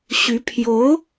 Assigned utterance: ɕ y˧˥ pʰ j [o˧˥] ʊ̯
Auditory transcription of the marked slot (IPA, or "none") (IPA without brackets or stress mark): o˧˥